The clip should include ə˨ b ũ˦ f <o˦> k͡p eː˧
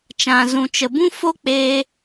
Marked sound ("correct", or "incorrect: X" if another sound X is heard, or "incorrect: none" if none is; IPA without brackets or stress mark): correct